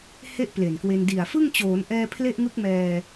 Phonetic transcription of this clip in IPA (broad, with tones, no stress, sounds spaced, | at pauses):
h e˥˩ ʔ p l e˨˩ n k w e˧ n d i˨˩ a̯ f ɯ˥˩ ŋ t͡ɕ oː˩˦ n ʔ ɛː˧ pʰ l e˥˩ ʔ ŋ ɯ˦˥ k̚ m ɛː˧